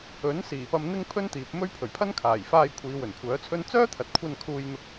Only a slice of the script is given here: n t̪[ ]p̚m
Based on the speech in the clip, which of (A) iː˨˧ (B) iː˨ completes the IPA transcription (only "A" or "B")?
B